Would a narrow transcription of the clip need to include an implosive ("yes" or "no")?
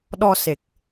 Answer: yes